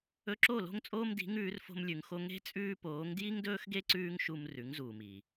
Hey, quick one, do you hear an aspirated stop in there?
no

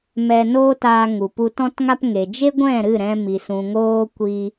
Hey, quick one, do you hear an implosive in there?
no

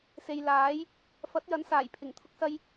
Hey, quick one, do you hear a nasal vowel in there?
no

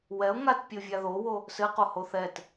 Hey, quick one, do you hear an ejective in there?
no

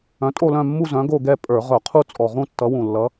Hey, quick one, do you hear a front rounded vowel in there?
yes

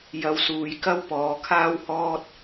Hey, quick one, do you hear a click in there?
no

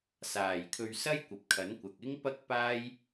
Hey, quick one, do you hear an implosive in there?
no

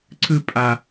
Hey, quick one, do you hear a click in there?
yes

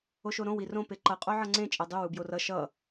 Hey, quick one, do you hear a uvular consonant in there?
yes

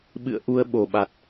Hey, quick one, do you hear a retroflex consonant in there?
no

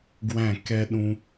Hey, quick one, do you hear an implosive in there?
yes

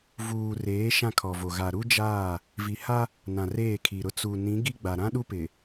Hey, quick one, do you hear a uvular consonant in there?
no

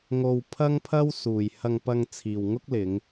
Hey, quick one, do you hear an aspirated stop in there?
yes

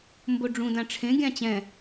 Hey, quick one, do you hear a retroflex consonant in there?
yes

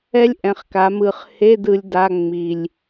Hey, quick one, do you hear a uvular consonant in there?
yes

